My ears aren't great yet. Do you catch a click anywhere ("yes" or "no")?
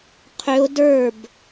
no